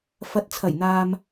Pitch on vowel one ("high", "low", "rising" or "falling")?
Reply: low